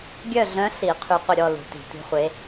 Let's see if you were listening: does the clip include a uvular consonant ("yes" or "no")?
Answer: yes